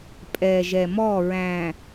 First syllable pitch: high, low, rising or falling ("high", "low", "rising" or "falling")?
low